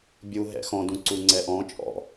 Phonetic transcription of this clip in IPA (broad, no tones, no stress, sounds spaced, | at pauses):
bʲ u ɦ ɛ̰ x ɔ̃ d ũ ǀ u ŋ͡ǀ ɛ ʔ ɔ̃ t͡ʃʼ ɔ̰